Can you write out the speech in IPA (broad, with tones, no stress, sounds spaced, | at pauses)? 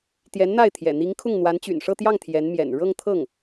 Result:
t̪ j ɛ˧˥ n n̪ a˥˩ ɪ̯ t̪ʰ j ɛ̰˨˩ n̪ i˧˥ ŋ kʰ ʊ˥˩ ŋ n̪ w a˧˥ n t͡ɕ y̰˨˩ n ʂ ɤ˥˧ t̪ j ɑ˥˩ ŋ t̪ʰ j ɛ˧˥ n m j ɛ̰˨˩ n ɻ ɤ˥˧ ŋ t̪ʰ ɤ˥˩ ŋ